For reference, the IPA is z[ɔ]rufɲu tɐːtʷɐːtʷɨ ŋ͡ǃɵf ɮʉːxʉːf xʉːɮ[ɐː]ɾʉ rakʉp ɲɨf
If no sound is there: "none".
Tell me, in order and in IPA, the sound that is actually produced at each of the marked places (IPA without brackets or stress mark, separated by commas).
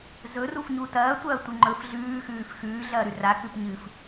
ɵ, ɐː